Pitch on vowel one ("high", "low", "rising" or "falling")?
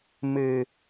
low